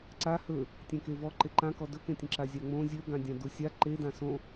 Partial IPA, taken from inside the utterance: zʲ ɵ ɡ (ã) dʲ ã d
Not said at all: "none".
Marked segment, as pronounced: ã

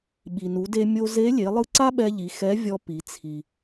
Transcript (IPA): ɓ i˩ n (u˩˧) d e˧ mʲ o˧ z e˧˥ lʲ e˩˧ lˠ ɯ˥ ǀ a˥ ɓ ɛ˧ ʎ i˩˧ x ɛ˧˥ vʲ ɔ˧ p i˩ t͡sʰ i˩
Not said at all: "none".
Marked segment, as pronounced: u˩˧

